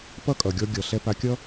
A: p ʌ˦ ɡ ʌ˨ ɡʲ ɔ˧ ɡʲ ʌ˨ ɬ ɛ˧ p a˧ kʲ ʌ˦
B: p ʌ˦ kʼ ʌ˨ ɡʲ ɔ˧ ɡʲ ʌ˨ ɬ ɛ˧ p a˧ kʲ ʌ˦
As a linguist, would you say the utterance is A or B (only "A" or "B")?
B